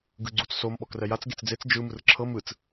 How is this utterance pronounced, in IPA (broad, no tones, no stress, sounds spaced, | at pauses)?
ɡ ɯ ɡ͡ǀ u t͡s s o m ɓ ɔ k r ɛ j a t͡s ɡ e t͡s d͡z e t͡s d͡ʒ ɯ m ɯ r ǁʰ ɤ m ɯ t͡s